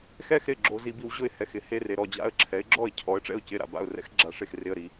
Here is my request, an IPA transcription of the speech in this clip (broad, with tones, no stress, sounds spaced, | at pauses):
x ɛ˥˧ x ɾ ɪ˥˩ ɡ͡ǁ o˧ z i˧ b i˧ w ʑ ʊ˥˩ ɪ̯ h ɛ˥˩ x ɪ˨˥ h e˥˧ r e˧ ɾ ɔ˥˩ d͡ʑ a̰˥˩ ə̯ ǁʰ ɛ˨˥ ɪ̯ ɡ͡ǁ ɔ˥˩ ɪ̯ cʰ ɔ˨˥ ə̯ ʈ͡ʂ ɛ̰˥˩ ʊ̯ c ɪ˥˩ ɾ a̰˥˩ b a̰˥˩ ʊ̯ r ɛ̰˥˧ x ɡ͡ǁ a˧ ʂ e˥˩ x r ɪ˧ ə̯ ɾ i˨˥